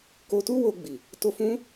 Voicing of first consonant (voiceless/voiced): voiceless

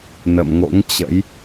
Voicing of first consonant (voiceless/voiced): voiced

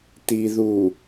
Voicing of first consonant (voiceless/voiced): voiceless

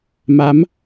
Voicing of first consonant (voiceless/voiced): voiced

